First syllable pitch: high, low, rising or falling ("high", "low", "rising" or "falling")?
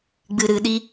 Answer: low